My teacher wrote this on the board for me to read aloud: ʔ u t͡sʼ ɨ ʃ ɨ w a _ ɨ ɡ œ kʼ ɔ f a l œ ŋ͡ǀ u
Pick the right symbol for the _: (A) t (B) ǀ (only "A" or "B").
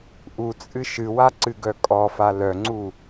B